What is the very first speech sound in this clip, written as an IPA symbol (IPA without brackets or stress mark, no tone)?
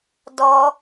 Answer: d